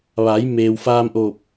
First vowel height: low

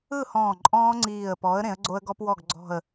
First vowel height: high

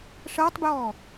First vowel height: mid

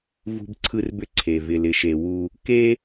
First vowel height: high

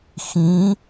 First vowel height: high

